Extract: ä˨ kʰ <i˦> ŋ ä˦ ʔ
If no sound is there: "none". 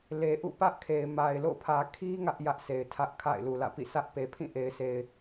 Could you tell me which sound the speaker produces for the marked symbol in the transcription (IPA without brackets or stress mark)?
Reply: i˦